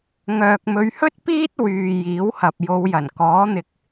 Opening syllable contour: low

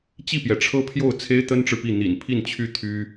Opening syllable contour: falling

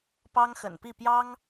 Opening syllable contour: high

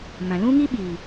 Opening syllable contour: low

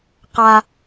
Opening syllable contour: high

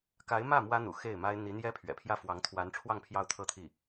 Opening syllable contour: rising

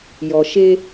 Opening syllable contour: low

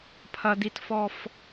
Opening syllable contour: low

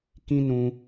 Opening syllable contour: high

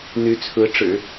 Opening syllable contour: rising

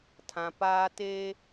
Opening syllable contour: low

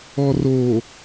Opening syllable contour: low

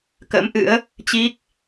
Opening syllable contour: rising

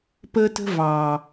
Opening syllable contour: high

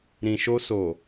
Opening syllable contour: low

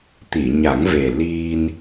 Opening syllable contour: low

